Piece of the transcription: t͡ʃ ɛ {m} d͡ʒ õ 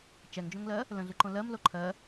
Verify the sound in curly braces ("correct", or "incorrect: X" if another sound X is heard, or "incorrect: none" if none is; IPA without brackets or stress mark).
incorrect: ŋ